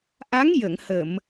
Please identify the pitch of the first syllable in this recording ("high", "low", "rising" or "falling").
rising